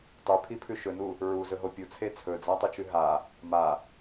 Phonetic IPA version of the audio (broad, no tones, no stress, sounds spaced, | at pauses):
tˤ ʉ pʰ i pʰ ʉ ʃ ɵ n u | ɹ u z ɵ ɦ o pʲ u t͡sʰ e t͡sʰ ɵ d͡z a tˤ u t͡ʃ ʉ ɦ a | m a